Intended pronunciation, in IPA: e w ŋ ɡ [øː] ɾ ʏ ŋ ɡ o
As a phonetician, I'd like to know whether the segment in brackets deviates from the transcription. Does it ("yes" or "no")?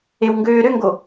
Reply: no